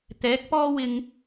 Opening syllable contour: rising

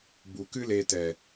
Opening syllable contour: low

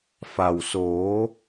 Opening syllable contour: low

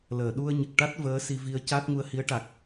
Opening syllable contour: low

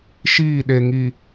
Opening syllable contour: falling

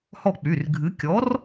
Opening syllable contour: falling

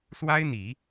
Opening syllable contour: high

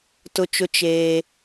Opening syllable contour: high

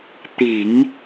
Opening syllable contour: low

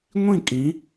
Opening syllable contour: falling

